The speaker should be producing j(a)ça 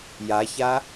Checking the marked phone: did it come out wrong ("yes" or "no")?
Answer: no